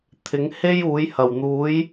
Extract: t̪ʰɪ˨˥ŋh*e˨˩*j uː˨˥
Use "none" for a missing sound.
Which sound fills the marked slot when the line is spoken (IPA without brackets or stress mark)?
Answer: e˥